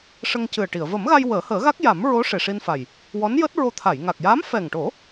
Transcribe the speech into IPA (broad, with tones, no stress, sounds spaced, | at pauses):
ʂ ə˧ ŋ c ɨ˨˩ ə̯ ʈ i˨˩˨ ə̯ v ə˨˩˦ m ɣ a˧ j w əː˨˩˦ h əː˨˩˦ ɣ a˦˥ k̚ j a˨˩˦ m ɹ o˧˥ ʂ e˨˩ ʂ i˧ n f a˨˩ j | w ɔ˧˥ n j əː˦˥ t̚ ɹ o˧ t̪ʰ a˨˩˨ j ŋ a˨˩ k̚ j aː˧˥ m f ɛ˨˩ ŋ ʈ o˨˩˦